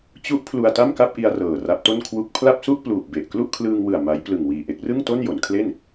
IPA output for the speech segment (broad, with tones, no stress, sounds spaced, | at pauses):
t͡ɕ u˦˥ ʔ pʰ l u˧ a̯ t a˥˩ m k a˥˩ p̚ ʔ i˧ a̯ r ɤː˨˩ r a˦˥ p̚ t o˥˩ n kʰ w u˥˩ k̚ pʰ l a˥˩ p̚ s u˥˩ ʔ p l uː˨˩ p̚ b e˨˩ ʔ k l u˥˩ ʔ kʰ l ɯː˧ ŋ w ɯ˨˩ a̯ m a˦˥ j p l ɯ˨˩ ŋ w iː˨˩ ʔ e˦˥ k̚ r ɯ˥˩ ŋ t o˥˩ n j o˩˦ n kʰ l e˥˩ n